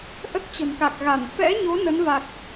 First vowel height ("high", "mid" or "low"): mid